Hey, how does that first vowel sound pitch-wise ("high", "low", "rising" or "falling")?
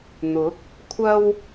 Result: rising